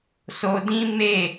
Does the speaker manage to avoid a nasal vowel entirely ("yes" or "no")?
no